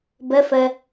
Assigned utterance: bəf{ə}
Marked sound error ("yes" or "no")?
no